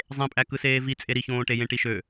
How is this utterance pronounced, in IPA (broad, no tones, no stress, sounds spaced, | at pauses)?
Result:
zˤ ẽ pʼ æ k ɯ s eː v i t͡sʼ e ɾ i ç õː ʈ e j ẽ ʈ i ʃ ø